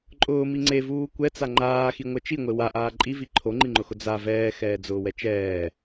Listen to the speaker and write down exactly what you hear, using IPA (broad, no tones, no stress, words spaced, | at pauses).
ǃʼʊːmi ŋ͡ǀevuː kʷɛt͡sa ŋ͡ǃaːxiŋʷɛ t͡ʃiŋʷe waʔaː ǃʼivi ǃʰoŋ͡ǃiŋ͡ǃʊxʊ d͡za vɛːxɛːd͡zʊːwɛ t͡ʃɛː